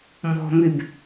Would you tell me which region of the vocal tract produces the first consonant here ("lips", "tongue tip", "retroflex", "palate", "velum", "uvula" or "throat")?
lips